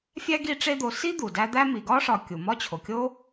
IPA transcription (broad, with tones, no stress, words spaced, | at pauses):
fʲæ˥ɡi˦ʈ͡ʂe˦d̪o˨ si˥ d̪u˩dæ˦ d̪æ˦mi˩ɡɒ˥ ʂɒ˨ kʲu˩ mɒ˦t͡ɕʰo˩kʲo˦